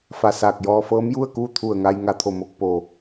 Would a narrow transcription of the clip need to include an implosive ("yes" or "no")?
no